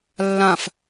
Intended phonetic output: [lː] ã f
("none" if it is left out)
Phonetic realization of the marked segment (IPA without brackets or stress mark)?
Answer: lː